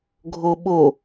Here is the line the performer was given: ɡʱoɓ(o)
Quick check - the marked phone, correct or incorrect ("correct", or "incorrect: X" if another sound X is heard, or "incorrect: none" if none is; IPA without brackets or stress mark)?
correct